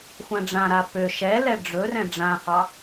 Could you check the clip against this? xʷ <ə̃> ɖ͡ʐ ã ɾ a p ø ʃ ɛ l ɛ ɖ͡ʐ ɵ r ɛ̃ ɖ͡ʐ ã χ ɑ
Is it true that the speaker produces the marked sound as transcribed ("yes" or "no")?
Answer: no